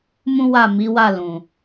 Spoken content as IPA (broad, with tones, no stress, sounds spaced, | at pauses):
m ũ˦ w a˦˨ m i˨˦ w a˦˨ l ũ˨